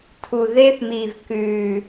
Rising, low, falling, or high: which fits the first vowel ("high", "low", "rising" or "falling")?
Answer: low